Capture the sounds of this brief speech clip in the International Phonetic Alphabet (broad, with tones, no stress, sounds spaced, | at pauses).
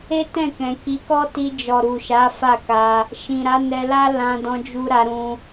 e˦ t ɛ̃˦˨ k ɛ̃˨ k i˨˦ k ɔ˦ t i˧ d͡ʒ ɔ˨ ɾ u˨ ʃ a˨˦ f a˦˨ k a˧ | ʃ ĩ˨ ɾ a˨˦ n ɛ˧ l a˦ l ã˧ d ɔ̃˧ d͡ʒ u˧ ɾ a˧ ɾ ũ˧